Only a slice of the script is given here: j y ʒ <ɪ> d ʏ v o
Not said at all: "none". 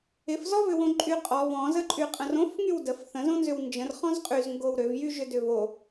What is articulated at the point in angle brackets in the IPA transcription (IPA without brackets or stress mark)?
ʏ